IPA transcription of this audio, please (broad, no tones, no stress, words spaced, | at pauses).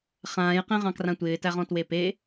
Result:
χãːjqẽʁɑ̃ krãtʷɪːtæʁɔ̃ twepe